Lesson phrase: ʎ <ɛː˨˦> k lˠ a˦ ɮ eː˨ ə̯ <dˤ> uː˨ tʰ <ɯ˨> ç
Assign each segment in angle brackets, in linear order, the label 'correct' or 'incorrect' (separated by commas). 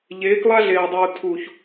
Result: incorrect, correct, incorrect